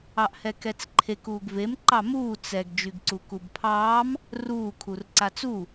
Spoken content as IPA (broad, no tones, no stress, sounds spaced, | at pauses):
ɑ ʔ h ɛ k ɛ t͡s ǃʰ e k uː ɡ v e m ǃ ɑ m uː t͡s ɛ ɡ d͡ʒ y ɡ ǀ u k u b pʰ ɑː m | r uː kʰ u r ǀ a t͡s u